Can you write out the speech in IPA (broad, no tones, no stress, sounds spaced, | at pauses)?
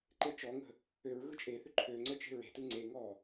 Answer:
ǃ e t͡ʃ ɔ ŋ ə̤ | ø ɹ ɣ ɯ t͡ʃʼ e θ ʏ ǃʰ ø ŋ͡ǀ ə t͡ʃ e̤ ɹ e̤ t ɯ ŋ͡ǀ e ŋ ɔ